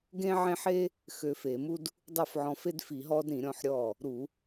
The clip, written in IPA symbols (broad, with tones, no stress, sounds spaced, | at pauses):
ɡ ẽ˥ ʕ ẽ˥ ħ e˥ | x ø˧ f e˧˩˧ m u˥ d | dˤ ʉ˥˩ f ʕ ɔ̃˧ f e˥ d f i˧˩˧ ɦ ɔː˥ d ɾ ĩ˧˩˧ ɾʲ ɔ̃˥˩ ħ ɾʲ ɔː˥˩ | ɾ u˧˩˧